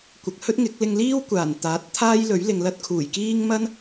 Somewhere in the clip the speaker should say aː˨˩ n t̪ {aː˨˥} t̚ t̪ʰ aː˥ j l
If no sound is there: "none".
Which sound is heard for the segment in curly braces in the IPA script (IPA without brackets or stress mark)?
aː˨˥